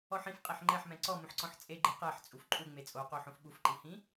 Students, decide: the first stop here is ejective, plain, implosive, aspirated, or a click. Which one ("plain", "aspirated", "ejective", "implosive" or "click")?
ejective